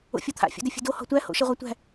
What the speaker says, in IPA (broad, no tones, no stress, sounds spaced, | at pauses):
o̰ fʲ ɔ t̪ʰ a̰ fʲ o̰ d ɛ fʲ ə̤ d o h ɔ̤ tʷ æ h o̰ ʃ ɛ ʁʷ a tʷ æ̤